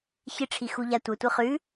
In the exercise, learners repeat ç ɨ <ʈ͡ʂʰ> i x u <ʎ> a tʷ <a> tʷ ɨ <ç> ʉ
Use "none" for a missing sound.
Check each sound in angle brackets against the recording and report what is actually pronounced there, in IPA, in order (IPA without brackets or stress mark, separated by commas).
ʈ͡ʂʰ, ʎ, ɐ, χ